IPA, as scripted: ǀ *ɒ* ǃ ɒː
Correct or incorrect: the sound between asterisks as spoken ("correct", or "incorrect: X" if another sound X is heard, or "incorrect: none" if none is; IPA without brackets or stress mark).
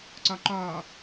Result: correct